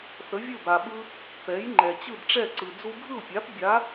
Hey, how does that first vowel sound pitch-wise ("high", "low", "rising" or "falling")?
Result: rising